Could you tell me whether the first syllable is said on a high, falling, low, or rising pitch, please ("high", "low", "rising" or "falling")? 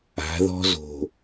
rising